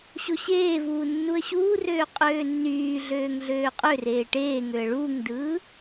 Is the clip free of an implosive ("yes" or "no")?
yes